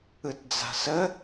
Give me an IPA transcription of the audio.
ɯ t d͡z a̤ s ə

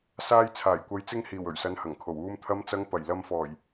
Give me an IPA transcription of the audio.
s aː˧ j t͡sʰ aː˨˩ j kʷ ɐ˨˧ j t͡s ɪ˧ ŋ h iː˨˩ w ɵ˨˩ ɥ s ɐ˨˧ n h ɐ˨˩ ŋ kʰ o˨˩ w uː˨ m t̪ʰ ɐ˨˧ m t͡s ɐ˨˧ ŋ p ɐ˨˩ j l ɐ˨ m f ɔː˨˩ j

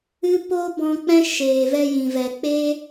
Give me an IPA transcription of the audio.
ɨ˦ p oː˦ b ɔ̃˧ k͡p ɛ̃˦ ʃ eː˨ v ɛ˧ j ĩ˨ v ɛ˨ k͡p e˦

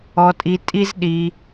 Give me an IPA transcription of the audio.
ɔ˧ tʼ i˧ tʼ i˦ z ɗ i˧

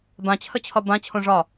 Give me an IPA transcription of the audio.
b ã t͡ɕʰ ə t͡ɕʰ ɒ b ã t͡ɕʰ õ ʐ ɒ

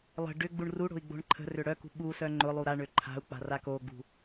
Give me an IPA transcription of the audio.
lˠ ə̤ ɖ ʏ ɡ͡b u ɳ r u ɽ o̤ i̯ ɡ͡b o̤ ɳ ǃʰ ə̤ r ʏ ɽ œ k ṳ ɓ u s œ ŋ͡ǃ ʊ lˠ u ɾ a ɳ ø ǃʰ a̤ u̯ k͡p a̤ r a k o ɡ͡b ṳ

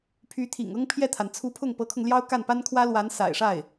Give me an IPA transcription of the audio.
pʰ y˧˥ t̪ʰ ḭ˨˩ ŋ ɤ˥ ŋ pʰ j ɛ˥˩ t̪ʰ a˩ n t͡sʰ u˧˥ pʰ ʊ˥˩ ŋ p ɤ˧˥ kʰ ʊ˧ ŋ l j ɑ˥ ʊ̯ k a˥˩ n p a˥ n kʰ w ä˥ l w a˧˥ n s a̰˨˩ ɪ̯ ʂ a˥˩ ɪ̯

